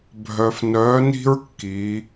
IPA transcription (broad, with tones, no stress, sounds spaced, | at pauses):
bʱ œ˩ f n œ˩˧ n i̤˧ ɹ kː i˩˧